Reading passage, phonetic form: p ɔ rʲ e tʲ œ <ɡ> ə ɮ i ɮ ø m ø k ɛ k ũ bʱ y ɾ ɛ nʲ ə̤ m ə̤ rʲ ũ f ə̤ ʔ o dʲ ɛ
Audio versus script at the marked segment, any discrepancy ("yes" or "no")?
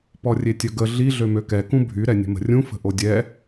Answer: no